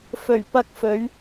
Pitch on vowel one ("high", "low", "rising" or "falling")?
low